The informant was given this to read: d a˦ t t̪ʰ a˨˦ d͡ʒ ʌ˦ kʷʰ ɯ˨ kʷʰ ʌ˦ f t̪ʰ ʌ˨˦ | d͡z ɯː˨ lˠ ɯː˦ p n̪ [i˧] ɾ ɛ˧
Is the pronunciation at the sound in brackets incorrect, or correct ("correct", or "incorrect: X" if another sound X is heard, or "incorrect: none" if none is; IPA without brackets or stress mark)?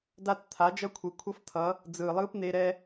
incorrect: e˧